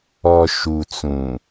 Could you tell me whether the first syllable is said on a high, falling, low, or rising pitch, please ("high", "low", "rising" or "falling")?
low